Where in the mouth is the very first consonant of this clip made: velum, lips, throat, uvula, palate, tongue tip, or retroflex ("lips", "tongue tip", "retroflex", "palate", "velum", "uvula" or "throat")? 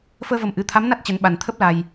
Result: lips